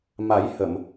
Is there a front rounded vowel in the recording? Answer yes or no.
no